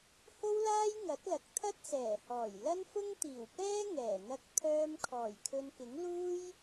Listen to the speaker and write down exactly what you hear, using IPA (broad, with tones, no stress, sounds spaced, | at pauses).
h o˥ w l aː˥ j ŋ ɐ˨˥ t̚ l ɐ˨ k̚ t̪ʰ ɐ˥ t̚ s ɛː˨˩ h ɔː˨˩ j l ɐ˥ n f ʊ˥ ŋ t̪ iː˨˩ w p ɛː˥ ŋ ɛː˨˩ n̪ ɐ˧ k̚ t̪ʰ œː˧ m kʰ ɔː˨˩ j kʰ ɵ˧ n k ɪ˨˥ ŋ l uː˥ j